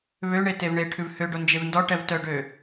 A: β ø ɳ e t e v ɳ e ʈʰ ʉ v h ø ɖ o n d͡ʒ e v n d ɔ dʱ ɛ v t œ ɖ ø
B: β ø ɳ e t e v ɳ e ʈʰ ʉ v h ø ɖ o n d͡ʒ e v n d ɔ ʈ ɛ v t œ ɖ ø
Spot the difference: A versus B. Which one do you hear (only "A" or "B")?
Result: B